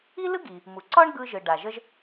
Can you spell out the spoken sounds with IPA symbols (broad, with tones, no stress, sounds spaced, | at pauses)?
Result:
i˥ l ɯ˥ ɡ i˩ | m u˩ ǀ ɒ˥ ɳ ɡ ɯ˧ ʒ ɯ˩ ɖ a˩ ʒ ə˧ ʒ